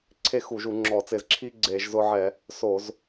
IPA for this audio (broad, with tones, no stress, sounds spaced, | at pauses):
ǀʰ e˦ x u˧˩˧ ʒ u˧˩˧ ŋ͡ǁ ɔː˧˩˧ t͡s ɪ˧˩˧ z ǁʰ i˦ ɡ͡ǀ eː˧˩˧ ʒ z ʊ˦ ʕ ɛ˧˩˧ | s o˧˩˧ z